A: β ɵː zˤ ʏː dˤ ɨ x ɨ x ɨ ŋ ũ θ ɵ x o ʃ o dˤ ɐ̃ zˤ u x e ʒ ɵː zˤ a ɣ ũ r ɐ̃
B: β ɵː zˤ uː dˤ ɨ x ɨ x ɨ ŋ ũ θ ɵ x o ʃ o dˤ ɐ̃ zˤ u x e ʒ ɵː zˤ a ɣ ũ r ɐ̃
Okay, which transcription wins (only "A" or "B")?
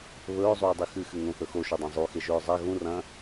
B